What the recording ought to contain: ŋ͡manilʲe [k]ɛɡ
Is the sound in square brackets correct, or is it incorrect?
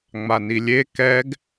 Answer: correct